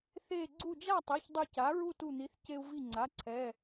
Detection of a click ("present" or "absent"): present